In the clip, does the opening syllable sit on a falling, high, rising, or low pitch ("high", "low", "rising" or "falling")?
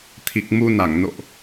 low